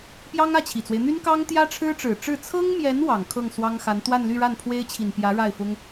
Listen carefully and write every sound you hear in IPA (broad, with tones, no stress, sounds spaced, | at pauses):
p j ɑ˥ ŋ ä˥˩ t͡ɕʰ i˨˩ t͡s w e˦ ɪ̯ n̪ y˥ n k ɑ˥ ŋ t̪ j ä˥ ʈ͡ʂʰ ɻ̩˥ ʈ͡ʂ ɻ̩˨˩ ʈ͡ʂ ɻ̩˥˩ t͡sʰ ɤ˥ ŋ m j ɛ˧˥ n w ɑ˨˩ ŋ kʰ ɤ˥˩ ŋ s w ɑ˥ ŋ x a˧˥ n t̪ w a˥˧ n l y˥˧ ɻ a˥˩ n pʰ w e˥ ɪ̯ t͡ɕʰ i˨˩ n p j ä˧˥ ɻ a˥˩ ɪ̯ f ʊ˥ ŋ